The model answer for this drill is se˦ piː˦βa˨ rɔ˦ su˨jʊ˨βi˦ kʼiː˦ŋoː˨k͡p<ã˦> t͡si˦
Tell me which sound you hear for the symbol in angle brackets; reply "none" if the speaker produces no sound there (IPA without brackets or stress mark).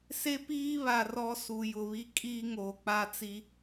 a˦